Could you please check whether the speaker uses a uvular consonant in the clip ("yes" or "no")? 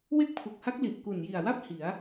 no